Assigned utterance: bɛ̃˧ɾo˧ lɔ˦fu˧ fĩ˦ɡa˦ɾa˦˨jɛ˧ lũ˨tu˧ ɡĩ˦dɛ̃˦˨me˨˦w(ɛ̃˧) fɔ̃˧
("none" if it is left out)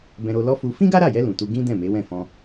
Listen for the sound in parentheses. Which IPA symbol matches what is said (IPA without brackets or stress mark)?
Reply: ɛ̃˦˨